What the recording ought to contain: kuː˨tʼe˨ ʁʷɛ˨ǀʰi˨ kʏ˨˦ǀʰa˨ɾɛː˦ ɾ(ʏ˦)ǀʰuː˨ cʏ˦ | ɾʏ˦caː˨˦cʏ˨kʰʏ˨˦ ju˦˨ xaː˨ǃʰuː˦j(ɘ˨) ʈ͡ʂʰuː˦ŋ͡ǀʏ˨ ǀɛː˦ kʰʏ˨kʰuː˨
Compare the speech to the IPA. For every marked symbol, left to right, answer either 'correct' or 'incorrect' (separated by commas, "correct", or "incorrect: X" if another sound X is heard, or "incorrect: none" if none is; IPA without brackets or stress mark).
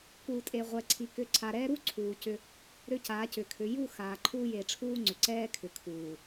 incorrect: u˦, incorrect: e˨